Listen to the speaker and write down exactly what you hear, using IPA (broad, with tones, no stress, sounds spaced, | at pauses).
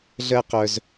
ɮ əː˥ q œ˧ z